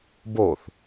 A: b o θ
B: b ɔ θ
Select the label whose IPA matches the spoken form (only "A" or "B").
A